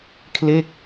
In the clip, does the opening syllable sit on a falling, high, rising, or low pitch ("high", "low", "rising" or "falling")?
falling